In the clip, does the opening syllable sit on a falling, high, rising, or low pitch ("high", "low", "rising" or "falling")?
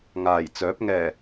low